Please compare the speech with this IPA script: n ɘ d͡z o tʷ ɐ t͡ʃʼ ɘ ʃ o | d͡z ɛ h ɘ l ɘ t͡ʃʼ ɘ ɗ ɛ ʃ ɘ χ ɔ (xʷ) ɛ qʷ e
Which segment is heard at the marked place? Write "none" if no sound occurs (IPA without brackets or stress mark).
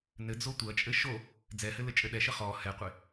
h